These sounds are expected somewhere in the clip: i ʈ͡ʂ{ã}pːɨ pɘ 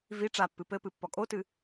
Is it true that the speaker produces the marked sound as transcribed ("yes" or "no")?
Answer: no